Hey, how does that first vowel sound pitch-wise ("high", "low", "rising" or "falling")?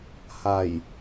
low